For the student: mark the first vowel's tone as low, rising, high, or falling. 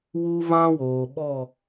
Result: high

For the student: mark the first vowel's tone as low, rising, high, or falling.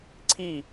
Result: falling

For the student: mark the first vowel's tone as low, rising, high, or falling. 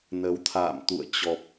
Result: rising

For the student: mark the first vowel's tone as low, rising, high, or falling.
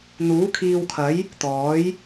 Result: rising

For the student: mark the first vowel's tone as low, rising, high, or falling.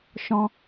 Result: high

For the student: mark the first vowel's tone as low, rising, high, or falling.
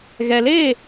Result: low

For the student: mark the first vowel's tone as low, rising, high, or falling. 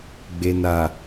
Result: low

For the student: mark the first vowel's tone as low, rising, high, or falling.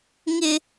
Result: high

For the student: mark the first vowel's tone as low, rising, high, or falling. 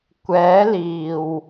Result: rising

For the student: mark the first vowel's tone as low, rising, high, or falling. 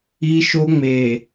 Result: high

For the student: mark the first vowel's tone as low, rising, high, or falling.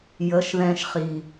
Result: rising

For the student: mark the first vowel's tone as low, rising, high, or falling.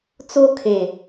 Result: high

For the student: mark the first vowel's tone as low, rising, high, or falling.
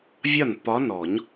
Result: falling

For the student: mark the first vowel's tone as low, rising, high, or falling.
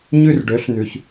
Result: falling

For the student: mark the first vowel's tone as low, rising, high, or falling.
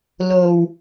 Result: low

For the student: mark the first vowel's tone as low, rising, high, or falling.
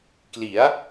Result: rising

